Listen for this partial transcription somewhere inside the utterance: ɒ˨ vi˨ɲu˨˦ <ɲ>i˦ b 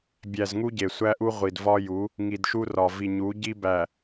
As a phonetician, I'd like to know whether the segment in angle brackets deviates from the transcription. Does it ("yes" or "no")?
yes